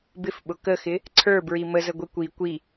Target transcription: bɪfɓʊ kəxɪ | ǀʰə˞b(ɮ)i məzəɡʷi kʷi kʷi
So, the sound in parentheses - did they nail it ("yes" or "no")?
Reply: no